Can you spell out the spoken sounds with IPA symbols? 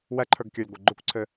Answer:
wæǃʰə˞ɡkʲə˞lʲɡʷe ɡ͡ǃukʷǀʰɘ

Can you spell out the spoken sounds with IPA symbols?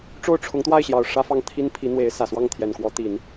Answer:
ʈ͡ʂo˥˩ʊ̯ʈ͡ʂʰʊ˧˥ŋt̪wa˥˩ɪ̯ɕjɑ˨˩ʊ̯ ʂä˥fɑ˥˩ŋt̪ʰi˥n pʰi˧˥n̪we˧˥ɪ̯sä˨˩swɑ˥˩ŋ t̪ʰjɛ˨˩nkwɔ˧˥t̪i˨˩˦n

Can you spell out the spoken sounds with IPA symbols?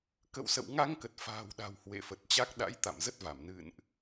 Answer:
kə̰˧˨wsə̰˧˨wŋa˧ŋ kə˨˩t̚fa̤ː˨˩w ɗa̤˨˩w hwḛ˧˨fə˨˩t̚t͡ɕa˦˥k̚ ɗa̰˧˥jt̪a̰˧˨mzə˦˥t̚va˧˩m nɨ̰˧˨nʔ

